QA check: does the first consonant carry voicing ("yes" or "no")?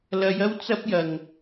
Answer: yes